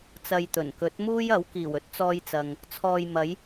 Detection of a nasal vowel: absent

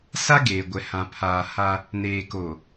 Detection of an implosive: absent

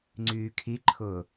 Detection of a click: present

